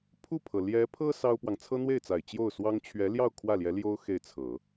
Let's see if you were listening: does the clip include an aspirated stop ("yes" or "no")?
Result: yes